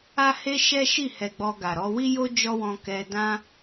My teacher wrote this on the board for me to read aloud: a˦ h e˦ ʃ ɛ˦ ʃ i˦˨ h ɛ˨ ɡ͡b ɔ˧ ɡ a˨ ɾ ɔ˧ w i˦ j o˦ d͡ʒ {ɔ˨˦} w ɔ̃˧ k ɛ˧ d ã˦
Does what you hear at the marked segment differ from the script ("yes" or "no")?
yes